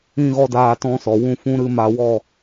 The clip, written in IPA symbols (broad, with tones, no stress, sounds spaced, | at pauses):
ĩ˦ ɣ ɔ˦ d aː˧ t ɔ̃˦ s ɔ˨ w ũ˦˨ f ũ˦ ɾ ɨ˦ m a˧ w ɔ˦˨